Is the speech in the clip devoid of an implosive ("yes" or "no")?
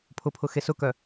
yes